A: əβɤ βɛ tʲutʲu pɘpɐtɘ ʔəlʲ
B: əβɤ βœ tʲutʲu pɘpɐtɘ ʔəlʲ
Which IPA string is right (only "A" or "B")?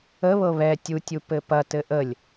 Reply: A